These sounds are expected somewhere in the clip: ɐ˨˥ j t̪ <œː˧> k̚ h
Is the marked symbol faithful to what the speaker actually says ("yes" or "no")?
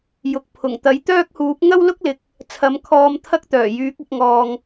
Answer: no